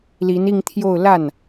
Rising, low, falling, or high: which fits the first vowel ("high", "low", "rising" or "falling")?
rising